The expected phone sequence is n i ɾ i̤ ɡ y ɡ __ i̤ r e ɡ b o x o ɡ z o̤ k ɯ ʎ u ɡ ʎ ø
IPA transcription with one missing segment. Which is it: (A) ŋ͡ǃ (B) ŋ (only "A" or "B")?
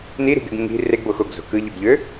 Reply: B